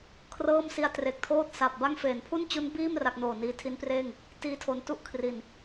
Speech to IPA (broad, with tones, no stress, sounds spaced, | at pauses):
kʰ r ɤː˥˩ m s i˦˥ a̯ t r e˨˩ k̚ tʰ oː˥˩ t̚ s a˨˩ p̚ b a˥˩ ŋ f eː˩˦ n pʰ u˥˩ n t͡ɕ u˦˥ n b iː˥˩ m r a˥˩ k̚ n oː˨˩ n iː˧ tʰ i˦˥ n p r eː˥˩ ŋ | t iː˥˩ tʰ o˧ n t u˥˩ ʔ kʰ r i˨˩ n